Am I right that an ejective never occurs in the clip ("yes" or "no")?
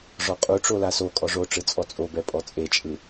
no